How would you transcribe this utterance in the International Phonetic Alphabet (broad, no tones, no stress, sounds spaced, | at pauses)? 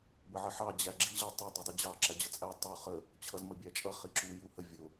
b ə ʕ ə ħ ɑ d͡ʑ æ ɡ͡ǁ i ʑ æ tˤ u dˤ i dˤ i d͡ʑ ɑ ǁ æ d͡ʑ ʌ t͡sʼ æ tˤ u χ ə | t͡ɕʰ ʌ z m ə bʲ æ t͡ʃʼ ʌ χ i ǁ u j u h ə vʲ ʊ